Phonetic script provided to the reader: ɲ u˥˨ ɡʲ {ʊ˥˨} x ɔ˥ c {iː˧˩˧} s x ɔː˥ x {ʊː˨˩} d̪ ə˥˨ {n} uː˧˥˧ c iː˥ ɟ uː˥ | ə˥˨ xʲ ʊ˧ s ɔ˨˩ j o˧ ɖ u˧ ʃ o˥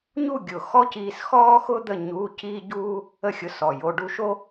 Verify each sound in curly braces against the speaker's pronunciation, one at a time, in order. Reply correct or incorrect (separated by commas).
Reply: incorrect, incorrect, incorrect, incorrect